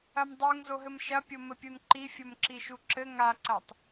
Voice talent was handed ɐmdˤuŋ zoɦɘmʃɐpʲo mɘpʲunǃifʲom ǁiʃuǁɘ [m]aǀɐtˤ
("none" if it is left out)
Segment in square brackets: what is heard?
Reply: ŋ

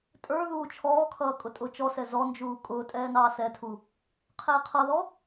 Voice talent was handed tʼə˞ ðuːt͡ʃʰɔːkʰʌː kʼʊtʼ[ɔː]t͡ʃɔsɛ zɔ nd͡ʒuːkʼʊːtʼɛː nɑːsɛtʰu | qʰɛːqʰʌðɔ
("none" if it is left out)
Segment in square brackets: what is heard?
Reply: ʊː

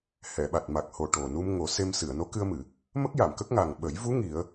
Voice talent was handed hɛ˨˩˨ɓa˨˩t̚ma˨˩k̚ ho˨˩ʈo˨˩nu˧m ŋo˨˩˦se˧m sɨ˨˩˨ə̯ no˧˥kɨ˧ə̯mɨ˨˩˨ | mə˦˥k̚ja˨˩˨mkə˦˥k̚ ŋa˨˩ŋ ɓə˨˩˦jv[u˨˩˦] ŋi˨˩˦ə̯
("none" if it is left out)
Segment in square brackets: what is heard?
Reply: u˧˥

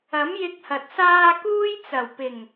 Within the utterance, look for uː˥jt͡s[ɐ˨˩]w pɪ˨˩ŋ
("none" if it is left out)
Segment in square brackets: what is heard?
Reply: ɐ˨˩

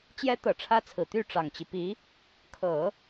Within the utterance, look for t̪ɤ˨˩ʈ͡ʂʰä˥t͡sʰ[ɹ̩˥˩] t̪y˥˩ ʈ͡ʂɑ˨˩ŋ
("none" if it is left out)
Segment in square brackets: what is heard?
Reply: ɹ̩˨˩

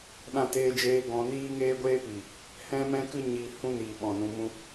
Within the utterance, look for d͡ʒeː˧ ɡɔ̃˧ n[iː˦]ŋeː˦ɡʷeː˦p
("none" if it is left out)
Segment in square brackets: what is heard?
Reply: iː˦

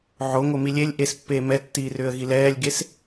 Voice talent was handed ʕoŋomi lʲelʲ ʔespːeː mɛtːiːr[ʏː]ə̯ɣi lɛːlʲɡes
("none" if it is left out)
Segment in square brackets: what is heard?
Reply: ʏː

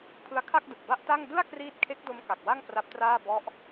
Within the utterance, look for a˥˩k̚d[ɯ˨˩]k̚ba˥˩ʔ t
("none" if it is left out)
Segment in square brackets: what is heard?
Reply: ɯ˨˩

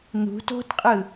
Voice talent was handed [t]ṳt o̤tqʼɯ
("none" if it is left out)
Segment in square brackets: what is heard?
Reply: n̪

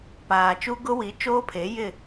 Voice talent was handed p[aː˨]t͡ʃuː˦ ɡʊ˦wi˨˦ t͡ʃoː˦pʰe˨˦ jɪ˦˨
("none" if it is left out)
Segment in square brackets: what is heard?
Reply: aː˨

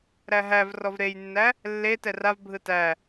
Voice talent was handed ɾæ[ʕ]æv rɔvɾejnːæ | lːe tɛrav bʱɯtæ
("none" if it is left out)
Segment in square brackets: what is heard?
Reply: ɦ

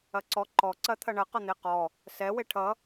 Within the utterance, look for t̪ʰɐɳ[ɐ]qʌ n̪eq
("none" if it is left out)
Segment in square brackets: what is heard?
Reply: ɐ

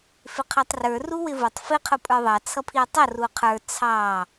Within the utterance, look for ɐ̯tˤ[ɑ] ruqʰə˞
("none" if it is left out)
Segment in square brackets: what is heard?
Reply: ʌ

